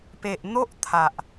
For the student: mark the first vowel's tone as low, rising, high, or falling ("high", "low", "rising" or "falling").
low